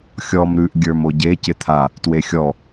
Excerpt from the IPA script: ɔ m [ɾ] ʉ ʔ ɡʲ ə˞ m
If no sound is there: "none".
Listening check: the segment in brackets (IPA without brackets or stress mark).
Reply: ɾ